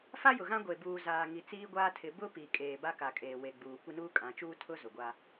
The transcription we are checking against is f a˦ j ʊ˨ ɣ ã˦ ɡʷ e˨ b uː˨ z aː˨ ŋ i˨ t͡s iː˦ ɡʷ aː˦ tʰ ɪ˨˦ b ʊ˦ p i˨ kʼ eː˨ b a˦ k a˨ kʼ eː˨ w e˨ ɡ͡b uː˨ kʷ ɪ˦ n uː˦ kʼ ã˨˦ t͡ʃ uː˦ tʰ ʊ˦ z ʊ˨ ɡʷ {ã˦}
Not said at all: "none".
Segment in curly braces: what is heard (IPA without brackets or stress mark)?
a˦